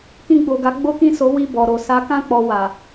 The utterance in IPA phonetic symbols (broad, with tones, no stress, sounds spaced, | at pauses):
k ĩ˧ ɡ͡b o˨ ɡ a˨˦ ɡ͡b o˦ k ĩ˦˨ s o˨˦ w i˦˨ b ɔ˨ ɾ o˨ s a˨˦ k ã˦˨ k͡p ɔ˨ w a˨